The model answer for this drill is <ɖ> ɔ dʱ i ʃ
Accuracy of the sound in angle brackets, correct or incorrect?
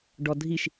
correct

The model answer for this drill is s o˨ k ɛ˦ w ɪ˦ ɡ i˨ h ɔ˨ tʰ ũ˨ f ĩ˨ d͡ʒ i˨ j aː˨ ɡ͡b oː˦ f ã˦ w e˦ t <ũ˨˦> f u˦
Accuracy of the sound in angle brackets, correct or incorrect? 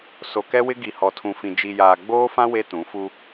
correct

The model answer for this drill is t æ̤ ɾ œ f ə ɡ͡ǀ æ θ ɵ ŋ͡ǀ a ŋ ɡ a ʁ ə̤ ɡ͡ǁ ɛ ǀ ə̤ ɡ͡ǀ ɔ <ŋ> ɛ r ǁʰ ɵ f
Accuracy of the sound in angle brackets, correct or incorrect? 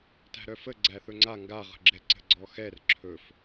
incorrect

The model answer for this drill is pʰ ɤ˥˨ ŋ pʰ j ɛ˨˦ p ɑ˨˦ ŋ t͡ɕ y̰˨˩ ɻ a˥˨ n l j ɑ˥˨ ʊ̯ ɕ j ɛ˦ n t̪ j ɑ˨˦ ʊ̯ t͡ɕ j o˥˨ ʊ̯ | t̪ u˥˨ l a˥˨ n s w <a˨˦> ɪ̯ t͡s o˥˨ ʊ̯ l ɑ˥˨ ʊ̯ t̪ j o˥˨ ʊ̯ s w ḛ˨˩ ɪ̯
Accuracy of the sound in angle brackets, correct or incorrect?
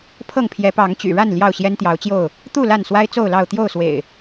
incorrect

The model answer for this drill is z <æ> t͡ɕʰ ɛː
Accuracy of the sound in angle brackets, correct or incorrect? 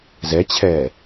incorrect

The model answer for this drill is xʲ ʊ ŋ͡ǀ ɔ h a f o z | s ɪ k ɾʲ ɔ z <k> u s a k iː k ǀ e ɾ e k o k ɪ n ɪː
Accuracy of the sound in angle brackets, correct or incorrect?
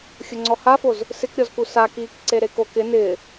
correct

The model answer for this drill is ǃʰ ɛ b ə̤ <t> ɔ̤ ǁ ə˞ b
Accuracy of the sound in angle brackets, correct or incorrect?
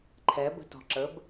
correct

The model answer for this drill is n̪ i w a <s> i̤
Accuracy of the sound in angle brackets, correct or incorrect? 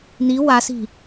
correct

